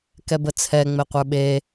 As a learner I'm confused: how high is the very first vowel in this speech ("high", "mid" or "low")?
mid